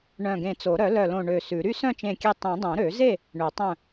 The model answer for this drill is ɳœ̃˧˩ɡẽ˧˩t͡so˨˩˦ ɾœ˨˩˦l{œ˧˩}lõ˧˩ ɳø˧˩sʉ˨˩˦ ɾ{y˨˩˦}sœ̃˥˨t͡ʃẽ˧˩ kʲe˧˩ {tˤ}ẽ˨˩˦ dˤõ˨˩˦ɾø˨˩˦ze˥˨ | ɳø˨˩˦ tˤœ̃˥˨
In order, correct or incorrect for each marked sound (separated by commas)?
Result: correct, incorrect, correct